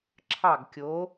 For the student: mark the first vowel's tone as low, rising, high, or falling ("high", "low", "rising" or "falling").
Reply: falling